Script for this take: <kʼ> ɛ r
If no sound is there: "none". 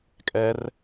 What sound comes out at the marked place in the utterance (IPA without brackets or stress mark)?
kʼ